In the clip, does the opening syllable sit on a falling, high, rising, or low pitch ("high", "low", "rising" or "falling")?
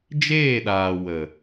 falling